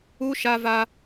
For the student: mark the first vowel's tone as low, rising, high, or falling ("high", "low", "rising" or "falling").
high